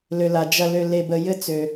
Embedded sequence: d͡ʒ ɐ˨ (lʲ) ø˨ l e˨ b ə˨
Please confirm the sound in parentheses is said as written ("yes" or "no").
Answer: no